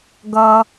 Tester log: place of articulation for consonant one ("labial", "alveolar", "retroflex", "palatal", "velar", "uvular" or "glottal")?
velar